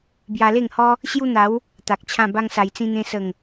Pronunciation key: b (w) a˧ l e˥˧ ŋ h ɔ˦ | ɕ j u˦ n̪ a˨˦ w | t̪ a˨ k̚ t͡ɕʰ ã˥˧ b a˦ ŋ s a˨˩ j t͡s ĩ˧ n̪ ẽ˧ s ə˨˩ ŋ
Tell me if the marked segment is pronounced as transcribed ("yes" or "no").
no